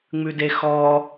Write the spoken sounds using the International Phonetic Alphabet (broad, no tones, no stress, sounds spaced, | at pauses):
ŋ͡m ʉ d e x ɔ